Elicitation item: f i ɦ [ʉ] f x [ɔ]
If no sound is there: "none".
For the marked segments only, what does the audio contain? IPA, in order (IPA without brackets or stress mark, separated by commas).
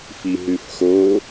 ʉ, o